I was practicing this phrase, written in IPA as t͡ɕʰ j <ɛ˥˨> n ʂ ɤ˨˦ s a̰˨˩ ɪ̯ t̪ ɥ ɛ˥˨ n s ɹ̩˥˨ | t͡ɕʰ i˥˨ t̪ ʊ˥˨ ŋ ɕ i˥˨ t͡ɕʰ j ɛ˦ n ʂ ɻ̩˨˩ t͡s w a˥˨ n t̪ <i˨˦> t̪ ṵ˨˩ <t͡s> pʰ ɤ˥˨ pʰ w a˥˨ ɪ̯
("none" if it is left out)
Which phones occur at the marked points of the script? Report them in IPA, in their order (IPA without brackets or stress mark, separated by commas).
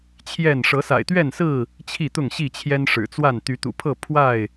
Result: ɛ˥˨, y˨˦, none